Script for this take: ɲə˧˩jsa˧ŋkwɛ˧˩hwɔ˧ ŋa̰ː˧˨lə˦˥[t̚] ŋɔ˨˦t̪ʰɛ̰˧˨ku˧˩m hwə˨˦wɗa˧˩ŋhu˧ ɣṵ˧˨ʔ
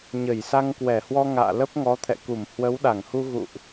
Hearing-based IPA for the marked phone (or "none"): p̚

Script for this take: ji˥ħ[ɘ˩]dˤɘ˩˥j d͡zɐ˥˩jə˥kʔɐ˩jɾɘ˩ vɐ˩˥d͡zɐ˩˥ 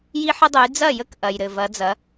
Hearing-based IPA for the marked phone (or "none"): ɘ˥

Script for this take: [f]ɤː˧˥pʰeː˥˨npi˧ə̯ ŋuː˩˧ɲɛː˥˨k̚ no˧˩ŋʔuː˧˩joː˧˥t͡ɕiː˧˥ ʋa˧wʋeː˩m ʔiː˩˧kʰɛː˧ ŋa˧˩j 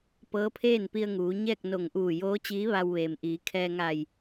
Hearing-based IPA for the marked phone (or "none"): p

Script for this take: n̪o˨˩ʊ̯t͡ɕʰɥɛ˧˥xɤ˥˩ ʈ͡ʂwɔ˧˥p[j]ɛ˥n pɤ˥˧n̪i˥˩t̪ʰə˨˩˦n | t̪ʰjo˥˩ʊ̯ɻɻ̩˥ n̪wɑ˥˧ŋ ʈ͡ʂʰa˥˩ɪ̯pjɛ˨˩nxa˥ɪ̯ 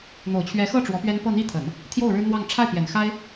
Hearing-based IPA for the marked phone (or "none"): ɥ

